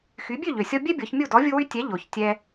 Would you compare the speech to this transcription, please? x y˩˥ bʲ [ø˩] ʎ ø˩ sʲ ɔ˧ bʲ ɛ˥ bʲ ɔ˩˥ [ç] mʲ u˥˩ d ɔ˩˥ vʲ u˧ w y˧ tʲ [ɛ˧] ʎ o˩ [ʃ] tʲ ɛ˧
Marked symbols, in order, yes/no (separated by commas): no, yes, no, no